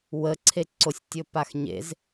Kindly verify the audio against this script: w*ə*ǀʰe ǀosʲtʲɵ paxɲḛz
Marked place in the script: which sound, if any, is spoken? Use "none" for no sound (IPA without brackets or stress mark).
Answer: ə